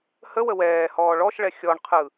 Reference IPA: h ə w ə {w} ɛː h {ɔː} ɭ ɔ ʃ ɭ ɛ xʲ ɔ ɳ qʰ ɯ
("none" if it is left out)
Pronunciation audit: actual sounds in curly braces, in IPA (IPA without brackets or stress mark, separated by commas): w, ɔː